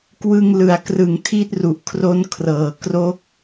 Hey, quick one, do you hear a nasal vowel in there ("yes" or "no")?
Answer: no